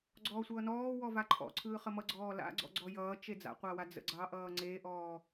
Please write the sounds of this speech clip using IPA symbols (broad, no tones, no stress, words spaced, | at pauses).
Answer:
ɡ͡ǀɔːsʷʌːnɔː wɔvaǃʰɔ̰ǀʰɯː χəmʌɡ͡ǀɔː la̰ɡ͡ǀɔ̰ ɡ͡ǀɔjʌːt͡ʃe d͡za̰qʷawa d͡zə̰ɡ͡ǀɑ ʔʌːŋ͡ǀeʔɔː